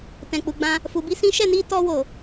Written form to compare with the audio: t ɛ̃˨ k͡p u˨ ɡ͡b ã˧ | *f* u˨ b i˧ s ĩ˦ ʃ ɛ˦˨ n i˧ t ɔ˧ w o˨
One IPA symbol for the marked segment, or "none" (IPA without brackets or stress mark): f